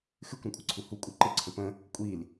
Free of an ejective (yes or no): no